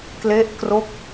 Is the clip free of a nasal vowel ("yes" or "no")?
yes